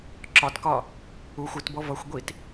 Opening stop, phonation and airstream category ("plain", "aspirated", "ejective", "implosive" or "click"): click